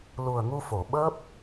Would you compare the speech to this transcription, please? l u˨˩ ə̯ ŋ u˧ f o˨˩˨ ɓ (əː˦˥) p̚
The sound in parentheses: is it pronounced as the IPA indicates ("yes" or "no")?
yes